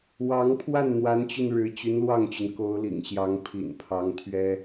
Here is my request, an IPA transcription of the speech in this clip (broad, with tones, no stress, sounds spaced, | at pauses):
w ɑ˧˥ ŋ pʰ w a˥˩ n n̪ w a˧˥ n t͡ɕ y˧ n ɻ ɻ̩˧˥ t͡ɕ y˧˥ n l w ɑ˥˩ ŋ t͡ɕ y˩ n k o˧˥ ʊ̯ l ḭ˨˩ ŋ ɕ j ɑ˧˥ ŋ pʰ ḭ˨˩ n pʰ ɑ˧˥ ŋ t̪ʰ ɥ ɛ˥